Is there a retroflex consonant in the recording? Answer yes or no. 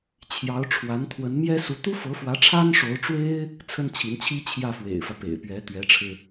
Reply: yes